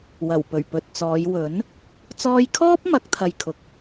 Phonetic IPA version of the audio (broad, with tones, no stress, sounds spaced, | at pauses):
w ɐ˨˩ w p ɵ˨˩ ɥ p ɵ˨ t̚ t͡s ɔː˨˧ j w ɵ˨˥ n | t͡s ɔː˧ j kʰ ɔː˥ p̚ m ɐ˨˥ k̚ t̪ʰ ɐ˨ j kʰ ʊ˨ k̚